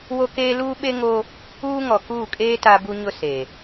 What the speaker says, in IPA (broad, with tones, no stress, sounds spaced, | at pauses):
w o˦ k eː˦ l uː˦ ɓ e˦ ŋ o˦ | uː˦ ŋ ɔ˨ k uː˦˨ kʼ eː˦ t a˦ b u˦ ɲ ʊ˦ s e˨